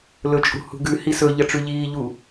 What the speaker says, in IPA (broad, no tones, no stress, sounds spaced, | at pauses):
l ɵ t͡ʃʼ ṳ h ṳ ɡ ʉ h i s ɵ ʎ ɐ ʈ͡ʂ ʉ ʎ iː ʎ u